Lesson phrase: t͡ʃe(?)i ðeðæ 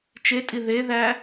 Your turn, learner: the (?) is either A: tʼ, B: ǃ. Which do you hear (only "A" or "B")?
A